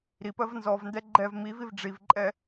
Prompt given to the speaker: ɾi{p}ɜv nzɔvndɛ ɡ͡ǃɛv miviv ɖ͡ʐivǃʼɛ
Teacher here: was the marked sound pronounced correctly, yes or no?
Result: yes